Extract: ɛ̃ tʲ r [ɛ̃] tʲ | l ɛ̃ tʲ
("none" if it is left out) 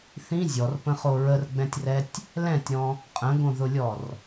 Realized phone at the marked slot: ɛ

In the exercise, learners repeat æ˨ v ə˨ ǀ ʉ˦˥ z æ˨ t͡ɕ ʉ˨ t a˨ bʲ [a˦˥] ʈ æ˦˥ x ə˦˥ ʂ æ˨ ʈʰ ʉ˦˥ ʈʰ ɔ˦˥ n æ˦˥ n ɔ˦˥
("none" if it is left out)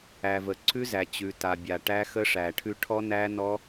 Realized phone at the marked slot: a˨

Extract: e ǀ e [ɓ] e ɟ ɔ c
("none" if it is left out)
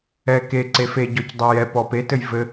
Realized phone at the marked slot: f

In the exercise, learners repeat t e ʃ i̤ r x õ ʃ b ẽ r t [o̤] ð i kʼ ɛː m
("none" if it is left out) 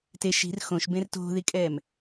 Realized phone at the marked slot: o̤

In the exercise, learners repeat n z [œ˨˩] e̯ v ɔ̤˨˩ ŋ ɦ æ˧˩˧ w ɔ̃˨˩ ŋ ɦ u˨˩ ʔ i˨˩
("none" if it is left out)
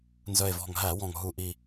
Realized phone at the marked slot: œ˨˩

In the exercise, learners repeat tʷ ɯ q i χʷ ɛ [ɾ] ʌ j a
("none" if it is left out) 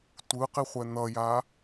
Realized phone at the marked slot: n̪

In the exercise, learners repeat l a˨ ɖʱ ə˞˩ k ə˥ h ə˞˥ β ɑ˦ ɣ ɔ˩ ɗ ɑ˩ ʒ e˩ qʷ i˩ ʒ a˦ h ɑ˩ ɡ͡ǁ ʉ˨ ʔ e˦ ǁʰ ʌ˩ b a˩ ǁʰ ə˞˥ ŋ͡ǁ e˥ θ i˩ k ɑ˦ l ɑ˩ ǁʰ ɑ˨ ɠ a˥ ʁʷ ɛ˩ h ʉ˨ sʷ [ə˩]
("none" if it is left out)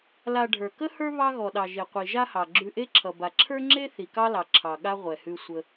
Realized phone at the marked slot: ə˨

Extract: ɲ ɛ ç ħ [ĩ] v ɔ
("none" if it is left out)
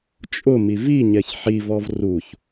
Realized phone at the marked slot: i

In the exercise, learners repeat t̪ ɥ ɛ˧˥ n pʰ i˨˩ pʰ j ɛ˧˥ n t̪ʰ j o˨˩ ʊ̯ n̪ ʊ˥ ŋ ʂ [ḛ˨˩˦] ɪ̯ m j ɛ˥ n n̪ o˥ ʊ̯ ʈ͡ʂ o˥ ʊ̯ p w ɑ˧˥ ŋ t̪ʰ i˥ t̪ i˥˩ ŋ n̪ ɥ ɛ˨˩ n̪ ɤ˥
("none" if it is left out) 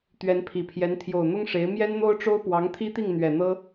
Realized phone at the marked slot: e˧˥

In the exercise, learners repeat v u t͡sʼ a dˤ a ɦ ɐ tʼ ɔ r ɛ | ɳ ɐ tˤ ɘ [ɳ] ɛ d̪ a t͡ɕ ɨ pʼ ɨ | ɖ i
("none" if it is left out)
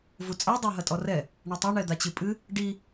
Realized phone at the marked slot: ɳ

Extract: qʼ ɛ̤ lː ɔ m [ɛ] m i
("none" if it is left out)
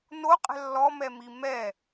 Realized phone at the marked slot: ɛ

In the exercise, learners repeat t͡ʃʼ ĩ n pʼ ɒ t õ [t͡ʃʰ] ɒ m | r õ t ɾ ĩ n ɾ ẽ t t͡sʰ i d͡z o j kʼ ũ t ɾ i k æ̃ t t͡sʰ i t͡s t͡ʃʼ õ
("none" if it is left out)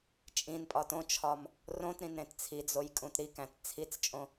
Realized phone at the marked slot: t͡ʃʰ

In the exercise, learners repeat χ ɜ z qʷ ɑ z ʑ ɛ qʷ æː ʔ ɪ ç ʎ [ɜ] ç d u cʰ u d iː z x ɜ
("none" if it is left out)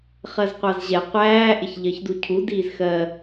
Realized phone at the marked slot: ɜ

